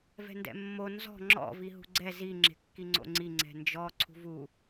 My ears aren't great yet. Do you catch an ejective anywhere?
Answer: no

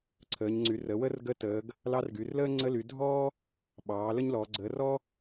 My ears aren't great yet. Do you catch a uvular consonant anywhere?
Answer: no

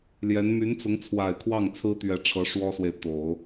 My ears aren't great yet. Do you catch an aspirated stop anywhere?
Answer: yes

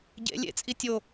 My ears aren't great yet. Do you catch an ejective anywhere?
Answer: yes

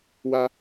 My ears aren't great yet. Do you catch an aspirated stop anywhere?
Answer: no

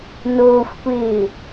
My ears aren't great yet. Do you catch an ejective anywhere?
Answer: no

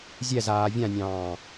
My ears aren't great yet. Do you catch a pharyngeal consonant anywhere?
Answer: no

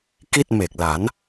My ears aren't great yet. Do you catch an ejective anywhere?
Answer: no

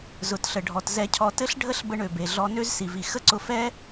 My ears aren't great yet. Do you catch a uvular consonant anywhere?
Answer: no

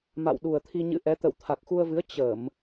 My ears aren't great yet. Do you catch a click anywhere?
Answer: no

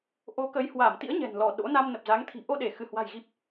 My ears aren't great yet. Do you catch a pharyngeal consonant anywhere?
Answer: no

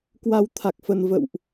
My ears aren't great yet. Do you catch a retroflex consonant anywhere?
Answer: no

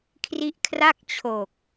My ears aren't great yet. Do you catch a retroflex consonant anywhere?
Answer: no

